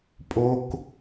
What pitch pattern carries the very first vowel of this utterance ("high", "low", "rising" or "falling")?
high